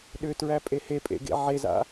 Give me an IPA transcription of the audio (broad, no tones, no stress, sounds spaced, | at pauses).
ɗ ʏ t ɹ æ pʼ e h e pʼ ḛ ɡ ḛ ʕ e z a̰